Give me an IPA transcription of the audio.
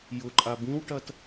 jʊǃʼa bĩwʈɐt

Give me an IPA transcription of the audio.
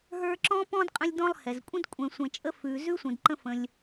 ɦə˞˦ǁɔ̃˥pɔ̃˥dqʼə̃˦lʲ dɔ̃˦lˠhɛ˩zkʷʼə̃˥d kʷʼɛ̃˨sʷɛ̃˨t͡ʃʼə˦ fʉ˨ zʉ˥sʷə̃˨dǃə̃˦fə̃˨lʲ

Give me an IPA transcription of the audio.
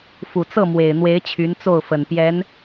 fu˨˩t͡sɤ˥˩mwe˨˩ɪ̯n̪we˧˥ɪ̯ t͡ɕʰy˧˥nt͡so˥˩ʊ̯fə˨˩npjɛ˧˥n

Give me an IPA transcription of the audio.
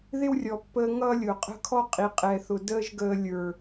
ðɪ˦wrʲɔ˨pːəː˧ ŋʌː˦lʲʊ˨qʼə̤˦kʰɔ˦ qʼi˨qʼɛ˨θʊ˨ dəː˦ʒɡəː˧ lʲə˞˨

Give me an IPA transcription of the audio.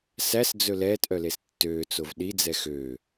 sæsd͡zɵ lɛːtʔœles tːøːt͡sov ɗid͡zɛ xø

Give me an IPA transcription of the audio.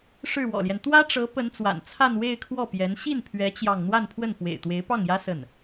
ʂɻ̩˥˩wɔ̰˨˩ljɛ˦n t̪wä˥ʈ͡ʂɤ˧˥ pə˧˥nt͡swa̰˨˩n t͡sʰa˥˧nwe˥˧ɪ̯kʰwɔ˥˩pjɛ˧˥n ɕi˥˩npʰɥɛ˧˥ t͡ɕjɑ˥˧ŋ n̪wa˥˧npʰwə˥˩n fwḛ˨˩ɪ̯t̪we˧˥ɪ̯pɑ˥˩ŋjä˥ sə˥˩n

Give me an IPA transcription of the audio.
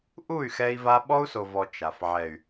ʔu˦˨y̯xɛ˧i̯va˧ ɓɔ˦u̯so˨vɔ˨ t͡ʃa˨f ʕɛ˨y̯

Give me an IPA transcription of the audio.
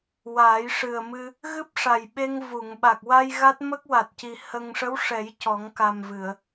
waː˨˩˦jʂɨ˨˩ə̯mɨ˧ | ɣɨ˦˥p̚ʂa˨˩jɓe˧ŋ vu˨˩˨ŋ ɓa˨˩k̚wa˧j ɣa˦˥t̚mə˦˥k̚wa˨˩t̚ci˨˩ hə˧ŋ ʂə˧˥w ʂɛ˨˩˦j cɔ˨˩˦ŋka˨˩mvɨ˨˩˨ə̯

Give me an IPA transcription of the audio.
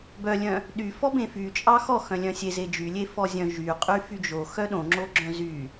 bœlʲœ̃ | ɗy fɔbẽfy t͡ʃʼɑxɔ xœ̃lʲœ̃sʲe zed͡ʒylʲe fɔzʲœ̃ ʒyqʼy fyd͡ʒo xœɗõŋ͡ǁoɡ͡ǁœ̃ zy

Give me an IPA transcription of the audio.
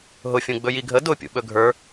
ɦʊfʲũɡ͡bɵ jiɡʱə dʊ pʲṵɓɵɡʱə˞

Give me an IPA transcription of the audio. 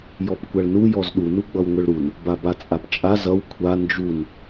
jɔpkʷaɭnu jɔzɗu nuɡ͡bʌwŋʷʌɭɾun | babat͡sʼapt͡ʃʼaz ʌw kʷʰa nd͡ʒun

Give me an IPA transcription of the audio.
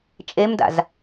t͡ʃʼemda̰z

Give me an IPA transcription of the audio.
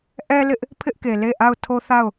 ʔɛ˦lɪ˦ʔ | pʰɪ˦ʔke˨ le˦˨ʔa˦˨ʊ̯ tʰo˦θa˦˨ʊ̯

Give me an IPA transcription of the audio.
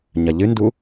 ɲɐʎɨndu

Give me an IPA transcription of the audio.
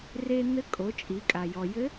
re˧n̪ɘ˧˥kʼo˩˧ t͡ʃʼi˩˧kʼa˩ jɔ˩jɘ˧˥

